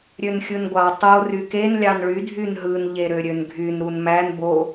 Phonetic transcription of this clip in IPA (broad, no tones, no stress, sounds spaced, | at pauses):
ɾʲ ø n xʲ ɯ n ɡʷ ɑ tˤ o r y k e n lʲ ɑ n ɭ y dʱ y n ɦ ɯ n ʎ e ɾ ø ɾʲ ø n ɡʱ y n ɾ u n m æ n b o